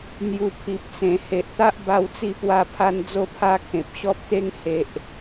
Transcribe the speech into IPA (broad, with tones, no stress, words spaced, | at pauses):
n̪ju˧pʰi˨p̚t͡sẽ˨˩ he˨ʔt̪a˦ʔ ba˦wt͡si˥˧pwa˦pʰa˦n d͡zo˦pʰa˦kʰẽ˨p̚ ɕɔ˦p̚t̪e˦ŋ he˦ʔ